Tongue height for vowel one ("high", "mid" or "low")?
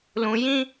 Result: high